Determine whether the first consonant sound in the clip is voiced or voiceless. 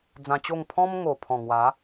voiced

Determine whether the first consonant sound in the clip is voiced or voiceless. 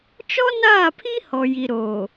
voiceless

